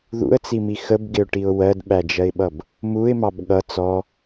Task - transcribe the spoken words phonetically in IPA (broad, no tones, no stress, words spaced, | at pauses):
ðṵə̯t͡simi xəbɡɪʊ̯ʈiʊ̯ wɜdɓæd͡ʒɜɪ̯ɓʌb | muɪ̯mɑb ɠʌ t͡sɔ